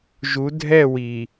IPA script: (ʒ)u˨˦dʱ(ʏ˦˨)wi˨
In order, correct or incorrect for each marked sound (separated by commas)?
correct, incorrect